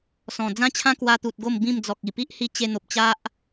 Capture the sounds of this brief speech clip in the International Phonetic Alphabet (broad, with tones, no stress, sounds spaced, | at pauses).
s ɔ̃˨˩ d͡z ã˦ t͡ɕʰ ã˦ k w a˧ t̪ u˨ t̚ ɡ o˥˧ m b ĩ˥˧ m d͡z ɔ˨ k̚ i˨˩ p i˦ ʔ h i˧ t͡ɕ e˧ n̪ o˨ p̚ t͡ɕ a˦ ʔ